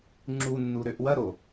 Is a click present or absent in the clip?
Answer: present